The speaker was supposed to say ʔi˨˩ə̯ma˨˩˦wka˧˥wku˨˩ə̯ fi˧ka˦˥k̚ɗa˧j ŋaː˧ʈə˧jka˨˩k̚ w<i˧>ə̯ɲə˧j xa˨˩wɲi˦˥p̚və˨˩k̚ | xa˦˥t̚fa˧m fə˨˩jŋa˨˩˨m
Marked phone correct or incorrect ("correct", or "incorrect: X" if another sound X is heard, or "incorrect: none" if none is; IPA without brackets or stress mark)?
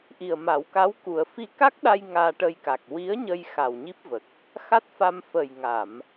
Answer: incorrect: i˧˥